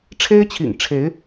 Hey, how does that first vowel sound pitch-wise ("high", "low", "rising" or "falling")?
high